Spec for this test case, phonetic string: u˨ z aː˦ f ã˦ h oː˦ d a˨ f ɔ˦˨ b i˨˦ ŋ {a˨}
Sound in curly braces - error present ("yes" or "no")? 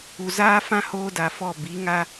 yes